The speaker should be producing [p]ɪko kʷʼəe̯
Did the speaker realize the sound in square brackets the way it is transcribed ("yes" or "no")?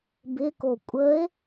no